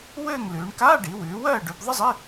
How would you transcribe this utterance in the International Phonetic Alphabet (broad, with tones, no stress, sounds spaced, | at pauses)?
w ɘː˥˨ ŋ l ʉː˩˧ ɳ k aː˧˥˧ ɖ i˩˧ w ʉː˩˧ w ɜː˥˨ ɖ ʉ˩˧ b ðˤ ɘ˥ zˤ i˧˥˧